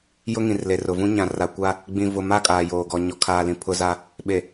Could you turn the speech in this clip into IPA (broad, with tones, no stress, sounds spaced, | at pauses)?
j ʊ˦ ŋ ĩ˨ r l e˨ r ʊ˨ v ũ˦ ɲ ã˨ r a˨ kʷ a˦ | ɡ͡b ĩ˨ v ʊ˨ m a˦˨ kʼ aː˨ j oː˨ ɡ ɔ˨ ɲ ɔ˨ kʰ aː˨ l ĩ˨ pʰ ʊ˦ z a˦ | ɓ e˨